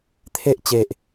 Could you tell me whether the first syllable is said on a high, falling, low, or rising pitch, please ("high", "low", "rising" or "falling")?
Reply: high